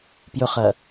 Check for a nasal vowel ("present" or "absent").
absent